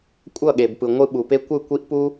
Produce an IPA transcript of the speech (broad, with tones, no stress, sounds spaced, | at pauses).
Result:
kʷʼ ʌ˦˨ ɠ e˨ b p ɯ˨ ŋʷ ɯ˧ ɓ u˨ p e˦ kʷ ɯ˦˨ kʷ i˦ ʔ p u˦